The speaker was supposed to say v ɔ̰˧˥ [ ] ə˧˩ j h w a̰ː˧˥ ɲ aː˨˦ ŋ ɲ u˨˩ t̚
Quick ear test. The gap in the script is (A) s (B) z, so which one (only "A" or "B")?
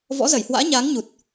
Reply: B